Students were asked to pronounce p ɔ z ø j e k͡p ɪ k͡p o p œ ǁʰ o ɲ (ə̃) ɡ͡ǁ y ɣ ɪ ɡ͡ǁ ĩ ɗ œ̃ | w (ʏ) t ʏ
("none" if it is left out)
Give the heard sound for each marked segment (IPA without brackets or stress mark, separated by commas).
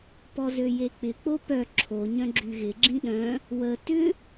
œ̃, ə